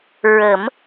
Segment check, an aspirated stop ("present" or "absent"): absent